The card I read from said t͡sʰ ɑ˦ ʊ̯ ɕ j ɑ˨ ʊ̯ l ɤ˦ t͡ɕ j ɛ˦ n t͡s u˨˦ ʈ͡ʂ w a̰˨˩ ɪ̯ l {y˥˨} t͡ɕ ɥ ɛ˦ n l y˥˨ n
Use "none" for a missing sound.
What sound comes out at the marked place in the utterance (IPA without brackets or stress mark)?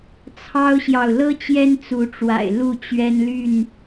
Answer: u˥˨